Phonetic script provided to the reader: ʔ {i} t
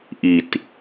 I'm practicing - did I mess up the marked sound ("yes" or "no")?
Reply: no